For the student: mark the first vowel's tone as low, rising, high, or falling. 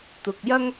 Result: low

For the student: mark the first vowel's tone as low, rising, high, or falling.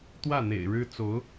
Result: falling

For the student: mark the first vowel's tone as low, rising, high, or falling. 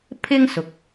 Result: high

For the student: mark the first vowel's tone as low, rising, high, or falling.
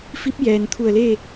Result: rising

